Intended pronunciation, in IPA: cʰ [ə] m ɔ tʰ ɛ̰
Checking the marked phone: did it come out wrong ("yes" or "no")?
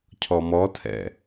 yes